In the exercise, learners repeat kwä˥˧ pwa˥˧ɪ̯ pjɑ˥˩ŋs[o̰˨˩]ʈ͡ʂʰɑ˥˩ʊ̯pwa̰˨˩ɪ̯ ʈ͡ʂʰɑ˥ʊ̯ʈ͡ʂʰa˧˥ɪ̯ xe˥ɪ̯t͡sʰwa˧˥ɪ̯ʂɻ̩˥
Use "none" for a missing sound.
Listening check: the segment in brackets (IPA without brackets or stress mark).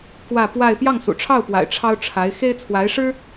ṵ˨˩